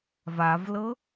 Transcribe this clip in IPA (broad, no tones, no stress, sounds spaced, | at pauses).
v a v l ɤ